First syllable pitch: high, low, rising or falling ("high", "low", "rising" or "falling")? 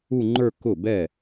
falling